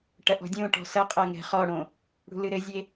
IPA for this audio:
ʈ ɐ ʔ ɔ̤ dʲ õ ʈ ɔ̤ s ɐ qʼ ɐ ŋ ɛ̤ χ ɔ ɽ õ | ɽ ṳ l ɨ ɾ ɘ zʲ e

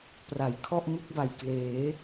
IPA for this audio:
p r a˩˦ j kʰ ɔ˥˩ ʔ m ɯ˥˩ k̚ b a˨˩ j k l eː˩˦

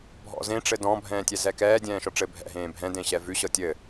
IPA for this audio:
bʱ ɔ̰ z ẽ ʈ͡ʂ ɘ d ɔ̃ bʱ ɛ̃ː tʲ ɛ z ɛ k ɛː dʲ ɛ̃ː ʃ ɔ ʈ͡ʂ ɘ bʱ ɛ̰ ɦ ẽː bʱ ɛ̃ d ẽ ɕ ɛ v ʉ ɕ ɤ tʲ ɘ

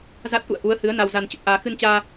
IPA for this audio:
z a˦˥ t̚ ʔ ṵ˧˨ ə̯ ʔ u˨˦ ə̯ h ɨ˨˦ ə̯ n a˧ w z a˧ n t͡ɕ ə˨˩ p̚ ʔ aː˧ x ɨ˧ n t͡ɕ aː˧

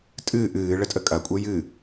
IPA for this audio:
tʼ ɨː ʔ ɨː ɭ ə tʼ ə kʼ ɐ kʷʼ e j ɨ

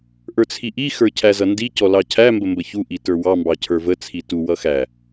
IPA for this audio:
ʔ ə˞ t͡sʰ i ʔ i x ə˞ cʰ æ z ʌ n d i c ɔ l ɑ cʰ æ m b ə m b ə ç u ʔ i t ə˞ w ɑ m b ɑ cʰ ə˞ v ə t͡sʰ i t u w ʌ x æ

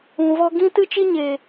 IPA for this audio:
ũ˨ v ɔ˧ ɡ ĩ˦ t ɨ˦ t͡ʃ i˦ ɲ eː˨

